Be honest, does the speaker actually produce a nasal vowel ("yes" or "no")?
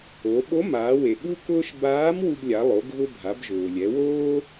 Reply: no